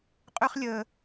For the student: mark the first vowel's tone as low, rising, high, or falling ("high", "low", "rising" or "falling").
high